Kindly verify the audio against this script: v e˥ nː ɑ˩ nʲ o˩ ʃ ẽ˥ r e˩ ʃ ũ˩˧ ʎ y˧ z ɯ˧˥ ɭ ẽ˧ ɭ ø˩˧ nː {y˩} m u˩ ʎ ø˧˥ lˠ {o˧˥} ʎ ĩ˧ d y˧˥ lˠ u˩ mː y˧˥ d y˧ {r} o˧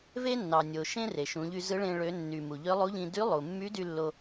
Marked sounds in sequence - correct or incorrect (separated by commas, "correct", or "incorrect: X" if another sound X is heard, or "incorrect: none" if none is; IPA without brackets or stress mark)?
correct, incorrect: u˧˥, incorrect: lː